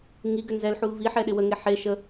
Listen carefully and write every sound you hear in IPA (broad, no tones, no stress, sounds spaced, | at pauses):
ŋ i ɡ ʏ n z ɛ l ħ u l v i ħ ɛ ɗ ɪ w ə ŋ e ħ e ʃ ə